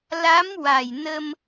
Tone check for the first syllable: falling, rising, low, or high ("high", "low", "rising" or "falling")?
rising